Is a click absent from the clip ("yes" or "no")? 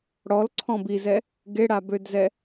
no